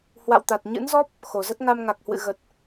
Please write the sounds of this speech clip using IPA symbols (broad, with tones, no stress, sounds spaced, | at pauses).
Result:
h w a̰˧˨ w t̪ a˨˩ t̚ ɲ ɨ̰˧˥ n z ɔ˦˥ p̚ | x o˧˩ z ə˦˥ t̚ ŋ a˧ m ŋ a˨˩ k̚ h w ɨ̰˧˨ ɣ ə˨˩ t̚